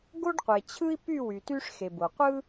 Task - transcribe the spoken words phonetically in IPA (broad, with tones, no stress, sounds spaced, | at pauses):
ɡ o˥ ɖ qʷ e˨ t͡ɕʰ ɯ˥ i̯ p y˥˧ w y˨ t y˥ ʂ x e˨ b o˨ qʷ ɯ˥